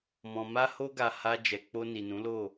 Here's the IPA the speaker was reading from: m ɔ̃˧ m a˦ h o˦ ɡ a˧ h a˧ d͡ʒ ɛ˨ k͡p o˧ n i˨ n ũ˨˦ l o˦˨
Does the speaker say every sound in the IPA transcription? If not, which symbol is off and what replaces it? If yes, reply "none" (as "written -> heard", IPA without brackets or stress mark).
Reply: none